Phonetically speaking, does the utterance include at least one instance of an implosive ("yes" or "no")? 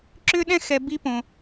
yes